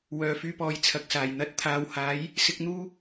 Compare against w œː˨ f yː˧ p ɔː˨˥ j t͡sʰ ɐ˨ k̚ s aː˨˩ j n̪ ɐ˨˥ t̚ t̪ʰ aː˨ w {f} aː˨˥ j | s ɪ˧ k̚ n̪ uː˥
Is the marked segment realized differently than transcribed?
yes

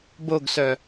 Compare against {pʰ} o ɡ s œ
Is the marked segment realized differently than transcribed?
yes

